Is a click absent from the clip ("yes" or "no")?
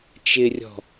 yes